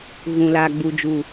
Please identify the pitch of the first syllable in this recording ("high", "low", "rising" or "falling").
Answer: low